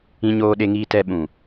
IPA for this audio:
ĩ˧ ɲoː˧ɗe˧ŋiː˧ tɛ˧ɓũ˨

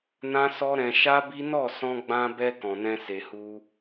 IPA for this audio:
nã˦sɔ˦ɾɛ̃˧ ʃa˦bi˦ nɔ˦˨sɔ̃˧ɡ͡bã˧bɛ˧ kɔ̃˨nɛ̃˧ se˨hu˧

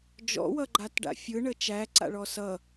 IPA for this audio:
d͡ʒɔ̰wʌɡ͡ǃatɖa̰ fʲɯɳə t͡ʃæǀa̰ɭɔ sʌ

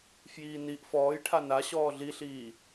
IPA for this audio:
fjiːniʔ fɔːj ʈʰana ɕɔːɮiɬiː

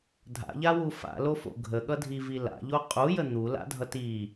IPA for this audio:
dʱa̰ʎawu fa̰lofo̰ ɡʱəɠʌdʱivi la̰ʎo qʼujə n̪ula̰dʱʌt i

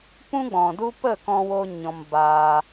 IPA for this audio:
pũ˦ɡ͡bɔ̃˨du˦ pə˦˨kɔ̃˧ wo˦ɲɔ̃˧mbaː˧

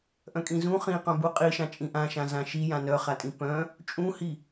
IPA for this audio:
ʔœ̃kʼĩzũ χĩqœ̃ buqʼiʃã t͡ʃʼĩʔãʃã zãʃijã nœχatʼĩ pœ̃ | t͡ʃʼũhi

